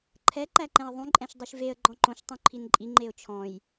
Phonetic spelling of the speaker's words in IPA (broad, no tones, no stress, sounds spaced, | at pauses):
ǃʰ ɛ ǃ æ ǃ ɛ̃ ə̯ ðˤ ũ ǃʼ ɛ̃ ʃ dˤ y ʃ v e ə̯ ɡ͡ǃ ɔ̃ ǃ õ ʃ tˤ ũ ǃʰ i n ǃʼ i ŋ͡ǃ e ʊ̯ t͡ʃʰ ɔ̃ j